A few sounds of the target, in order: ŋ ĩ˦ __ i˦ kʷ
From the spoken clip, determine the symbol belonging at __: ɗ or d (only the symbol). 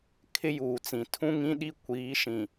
ɗ